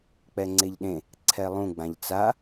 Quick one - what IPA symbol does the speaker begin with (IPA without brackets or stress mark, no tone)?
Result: k͡p